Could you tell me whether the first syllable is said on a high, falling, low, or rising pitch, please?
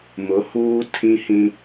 rising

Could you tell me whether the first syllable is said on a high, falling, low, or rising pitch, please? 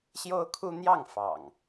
high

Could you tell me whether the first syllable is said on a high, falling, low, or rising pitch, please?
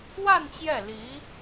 falling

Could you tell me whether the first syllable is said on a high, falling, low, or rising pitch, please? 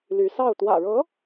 rising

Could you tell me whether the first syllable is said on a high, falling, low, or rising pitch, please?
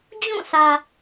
falling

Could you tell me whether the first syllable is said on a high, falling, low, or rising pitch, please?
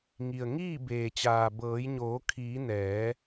low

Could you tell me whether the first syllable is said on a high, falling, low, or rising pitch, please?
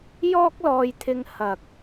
high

